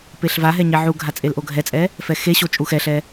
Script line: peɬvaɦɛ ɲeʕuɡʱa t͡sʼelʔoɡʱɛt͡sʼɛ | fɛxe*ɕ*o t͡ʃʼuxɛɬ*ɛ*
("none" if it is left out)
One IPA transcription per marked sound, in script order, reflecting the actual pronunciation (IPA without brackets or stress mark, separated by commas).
ɕ, ɛ